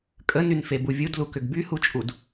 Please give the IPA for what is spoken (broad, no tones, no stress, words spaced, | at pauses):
kʼənynfebu vʲudlukʏɡ byhut͡ʃʼud